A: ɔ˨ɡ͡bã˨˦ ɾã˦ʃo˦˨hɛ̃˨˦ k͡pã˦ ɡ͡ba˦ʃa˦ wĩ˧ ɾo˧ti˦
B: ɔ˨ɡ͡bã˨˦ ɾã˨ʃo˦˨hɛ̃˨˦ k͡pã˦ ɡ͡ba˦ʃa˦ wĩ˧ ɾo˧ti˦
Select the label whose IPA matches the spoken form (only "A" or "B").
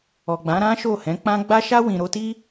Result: A